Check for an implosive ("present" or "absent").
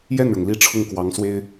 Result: absent